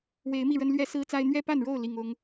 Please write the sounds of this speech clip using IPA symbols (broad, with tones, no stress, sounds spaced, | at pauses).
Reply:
w e˨˦ ɪ̯ m i˥˨ ɻ ə˦ n l ɥ ɛ˦ s ɹ̩˦ t͡s a˦ ɪ̯ n̪ ɥ ɛ˥˨ p a˥˨ n ɻ o˥˨ ʊ̯ l i˨˩ ŋ ʊ˨˦ ŋ